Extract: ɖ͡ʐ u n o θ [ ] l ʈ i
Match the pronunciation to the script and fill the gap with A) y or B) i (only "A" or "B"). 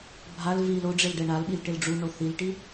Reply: B